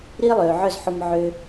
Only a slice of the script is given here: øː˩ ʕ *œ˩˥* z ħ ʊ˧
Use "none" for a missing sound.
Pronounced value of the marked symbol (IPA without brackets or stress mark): œ˥˩